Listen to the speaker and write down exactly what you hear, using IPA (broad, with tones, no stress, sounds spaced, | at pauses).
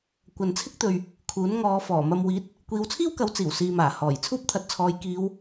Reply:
kʷ ɐ˨ n t͡sʰ ɪ˥ k̚ t̪ ɵ˨ ɥ | kʰ uː˨˥ n ŋ ɔː˨˧ f ɔː˨˩ m ɐ˧ m w iː˨˥ t̚ | kʷ iː˨˧ w t͡sʰ iː˥ w k ɐ˨˥ w t͡s iː˨˩ w s iː˨ m aː˨˩ h ɔː˨˩ j t͡sʰ uː˥ p̚ t̪ʰ ɐ˨˥ t̚ t͡sʰ ɔː˨˧ j k iː˨˧ w